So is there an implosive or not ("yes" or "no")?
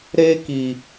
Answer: no